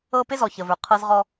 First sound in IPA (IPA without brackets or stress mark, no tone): ɤ